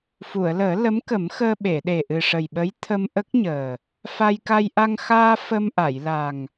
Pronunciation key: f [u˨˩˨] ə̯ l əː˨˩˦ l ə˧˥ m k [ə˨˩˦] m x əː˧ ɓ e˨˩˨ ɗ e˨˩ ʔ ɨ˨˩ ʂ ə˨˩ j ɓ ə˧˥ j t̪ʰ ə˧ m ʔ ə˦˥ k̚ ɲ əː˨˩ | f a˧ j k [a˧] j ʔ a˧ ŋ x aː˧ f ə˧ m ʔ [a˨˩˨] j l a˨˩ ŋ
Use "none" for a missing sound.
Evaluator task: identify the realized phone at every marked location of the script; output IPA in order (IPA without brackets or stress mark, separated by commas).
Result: u˨˩˨, ə˨˩˦, a˧, a˨˩˨